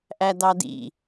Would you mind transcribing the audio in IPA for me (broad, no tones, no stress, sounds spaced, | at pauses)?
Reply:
ʔ æ d ɑ d ḭ